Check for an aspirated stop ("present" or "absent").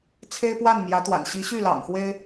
present